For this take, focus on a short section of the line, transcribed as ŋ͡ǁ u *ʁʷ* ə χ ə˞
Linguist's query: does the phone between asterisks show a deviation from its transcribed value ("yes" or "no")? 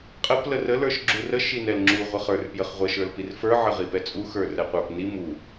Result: no